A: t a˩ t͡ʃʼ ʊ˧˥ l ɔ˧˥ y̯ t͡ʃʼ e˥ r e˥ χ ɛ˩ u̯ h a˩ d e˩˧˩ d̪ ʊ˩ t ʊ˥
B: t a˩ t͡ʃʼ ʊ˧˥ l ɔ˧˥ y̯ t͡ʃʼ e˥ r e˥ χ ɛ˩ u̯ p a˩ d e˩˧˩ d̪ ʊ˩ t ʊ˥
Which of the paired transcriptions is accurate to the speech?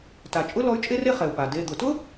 B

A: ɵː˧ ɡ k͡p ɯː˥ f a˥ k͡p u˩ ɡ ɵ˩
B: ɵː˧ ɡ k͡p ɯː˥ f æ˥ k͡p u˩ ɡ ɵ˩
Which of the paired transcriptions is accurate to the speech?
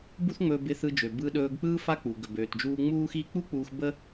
A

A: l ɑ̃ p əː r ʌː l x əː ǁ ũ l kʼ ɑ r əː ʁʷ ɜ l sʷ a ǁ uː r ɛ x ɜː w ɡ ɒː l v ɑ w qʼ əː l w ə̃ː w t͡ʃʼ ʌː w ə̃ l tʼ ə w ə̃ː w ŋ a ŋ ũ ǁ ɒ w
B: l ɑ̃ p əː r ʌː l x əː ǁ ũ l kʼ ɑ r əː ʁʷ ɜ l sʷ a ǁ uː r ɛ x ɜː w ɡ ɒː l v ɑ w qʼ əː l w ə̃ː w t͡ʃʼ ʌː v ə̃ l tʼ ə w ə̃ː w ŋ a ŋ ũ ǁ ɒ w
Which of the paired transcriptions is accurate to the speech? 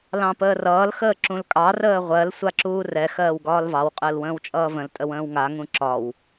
B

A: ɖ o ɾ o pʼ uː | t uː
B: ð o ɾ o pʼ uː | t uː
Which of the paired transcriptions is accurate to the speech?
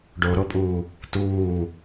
A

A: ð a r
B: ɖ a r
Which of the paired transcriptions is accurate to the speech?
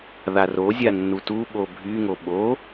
A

